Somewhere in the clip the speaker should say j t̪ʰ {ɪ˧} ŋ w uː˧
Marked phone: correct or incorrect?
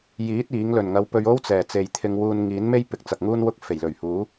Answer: correct